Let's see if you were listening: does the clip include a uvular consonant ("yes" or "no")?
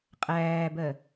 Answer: yes